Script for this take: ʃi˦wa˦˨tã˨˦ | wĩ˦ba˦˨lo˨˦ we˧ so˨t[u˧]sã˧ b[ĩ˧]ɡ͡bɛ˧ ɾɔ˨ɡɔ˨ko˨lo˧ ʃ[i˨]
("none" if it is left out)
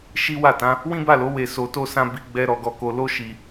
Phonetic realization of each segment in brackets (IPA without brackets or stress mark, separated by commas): o˧, i˧, i˨